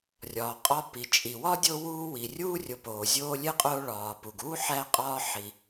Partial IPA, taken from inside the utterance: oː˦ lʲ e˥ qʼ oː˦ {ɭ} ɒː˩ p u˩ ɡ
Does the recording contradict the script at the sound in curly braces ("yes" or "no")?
no